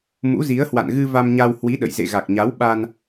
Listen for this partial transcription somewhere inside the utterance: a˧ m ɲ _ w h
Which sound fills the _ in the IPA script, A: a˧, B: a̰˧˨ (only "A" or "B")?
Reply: A